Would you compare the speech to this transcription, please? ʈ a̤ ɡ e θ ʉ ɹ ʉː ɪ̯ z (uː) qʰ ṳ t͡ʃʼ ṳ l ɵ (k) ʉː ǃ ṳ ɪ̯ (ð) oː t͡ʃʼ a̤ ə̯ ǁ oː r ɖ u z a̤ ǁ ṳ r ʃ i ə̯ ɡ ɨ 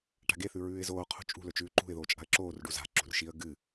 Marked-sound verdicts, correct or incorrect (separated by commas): incorrect, incorrect, correct